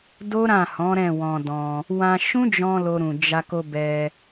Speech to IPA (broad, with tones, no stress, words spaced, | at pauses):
do˦ɾã˦˨hɔ̃˨˦ ɾɛ̃˦˨wɔ̃˧dɔ̃˧ | wã˧ʃũ˦d͡ʒɔ̃˧ lo˧ɾũ˨d͡ʒa˧ ko˧bɛ˧